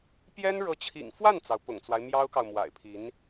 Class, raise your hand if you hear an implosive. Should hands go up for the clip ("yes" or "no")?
no